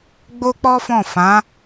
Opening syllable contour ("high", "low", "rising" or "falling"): high